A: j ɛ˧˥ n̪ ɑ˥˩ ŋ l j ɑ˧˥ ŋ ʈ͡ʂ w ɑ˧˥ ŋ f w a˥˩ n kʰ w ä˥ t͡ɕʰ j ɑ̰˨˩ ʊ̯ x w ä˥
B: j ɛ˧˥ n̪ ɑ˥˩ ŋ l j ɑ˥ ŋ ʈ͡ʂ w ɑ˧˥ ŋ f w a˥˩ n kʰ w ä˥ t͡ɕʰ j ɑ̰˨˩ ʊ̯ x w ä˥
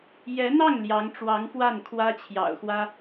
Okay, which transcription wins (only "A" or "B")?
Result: A